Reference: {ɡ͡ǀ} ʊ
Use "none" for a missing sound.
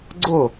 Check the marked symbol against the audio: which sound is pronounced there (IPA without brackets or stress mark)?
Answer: ɡ͡ǀ